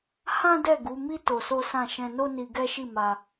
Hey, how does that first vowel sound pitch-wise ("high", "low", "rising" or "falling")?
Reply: high